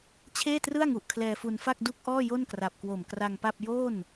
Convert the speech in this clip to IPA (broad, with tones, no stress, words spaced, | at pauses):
t͡ɕʰeː˥˩trɯ˥˩a̯ŋu˨˩ʔ kʰlɛː˧fu˧nfa˥˩k̚ du˥˩k̚ʔɔː˥˩ jo˥˩nkra˨˩p̚kwo˨˩m kra˧ŋpa˥˩p̚ jo˥˩n